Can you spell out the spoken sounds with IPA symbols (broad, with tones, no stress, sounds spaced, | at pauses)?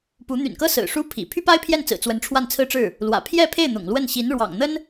p u˧˥ n̪ y̰˨˩ n k ɤ˥ s ɹ̩˨˩ ʂ u˥ pʰ ḭ˨˩ pʰ y˥ p a˥ ɪ̯ pʰ j ɛ˥˩ n t͡s ɹ̩˨˩ t͡s w ə˧˥ n ʈ͡ʂʰ w a˥˩ n t͡sʰ ɹ̩˥ ʈ͡ʂ ɻ̩˥˩ | l w ä̰˨˩ pʰ j ɛ˥˧ pʰ e˥˩ ɪ̯ n̪ ʊ̰˨˩ ŋ l w ə˥˩ n ɕ i˧˥ n ɻ w ɑ̰˨˩ ŋ n̪ ə˥ n